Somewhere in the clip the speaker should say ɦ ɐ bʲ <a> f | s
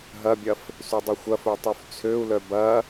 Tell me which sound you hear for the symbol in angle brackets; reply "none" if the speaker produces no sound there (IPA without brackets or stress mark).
ɐ